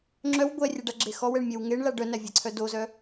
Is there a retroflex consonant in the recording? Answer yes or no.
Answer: yes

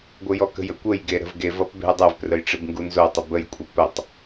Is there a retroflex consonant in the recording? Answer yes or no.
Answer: yes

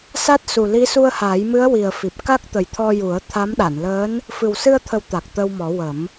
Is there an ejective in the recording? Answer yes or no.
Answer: no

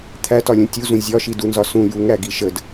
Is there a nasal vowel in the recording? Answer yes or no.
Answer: yes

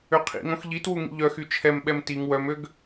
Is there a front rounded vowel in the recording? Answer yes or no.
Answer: yes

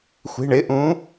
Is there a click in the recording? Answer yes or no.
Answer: no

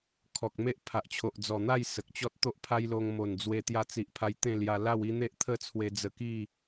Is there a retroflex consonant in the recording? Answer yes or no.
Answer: no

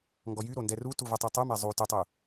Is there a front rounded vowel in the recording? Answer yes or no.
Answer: yes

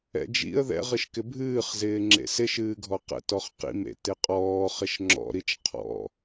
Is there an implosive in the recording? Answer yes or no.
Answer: no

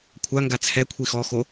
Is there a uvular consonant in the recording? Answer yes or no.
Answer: no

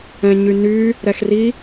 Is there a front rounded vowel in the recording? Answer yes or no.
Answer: yes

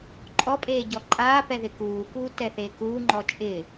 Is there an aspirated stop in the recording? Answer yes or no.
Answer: no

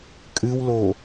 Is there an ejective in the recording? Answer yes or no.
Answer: yes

